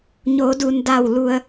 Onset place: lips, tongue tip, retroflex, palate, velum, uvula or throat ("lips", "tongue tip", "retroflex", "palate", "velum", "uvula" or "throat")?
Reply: palate